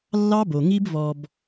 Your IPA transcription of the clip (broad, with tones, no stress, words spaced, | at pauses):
lːɑ˦bo˨ŋi˦b vɔ˧b